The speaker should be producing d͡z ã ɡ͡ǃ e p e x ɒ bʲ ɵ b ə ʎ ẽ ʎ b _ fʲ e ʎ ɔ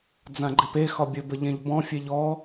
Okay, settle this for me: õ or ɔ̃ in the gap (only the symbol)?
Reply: ɔ̃